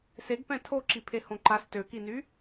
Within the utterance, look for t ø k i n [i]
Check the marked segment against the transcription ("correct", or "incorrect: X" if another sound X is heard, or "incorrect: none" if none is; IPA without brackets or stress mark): incorrect: y